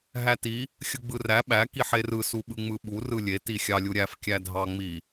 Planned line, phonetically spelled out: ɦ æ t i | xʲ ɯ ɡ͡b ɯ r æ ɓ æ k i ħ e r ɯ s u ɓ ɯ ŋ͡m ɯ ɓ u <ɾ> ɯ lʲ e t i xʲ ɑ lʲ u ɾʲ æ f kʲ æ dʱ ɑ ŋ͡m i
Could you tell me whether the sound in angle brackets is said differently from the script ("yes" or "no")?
yes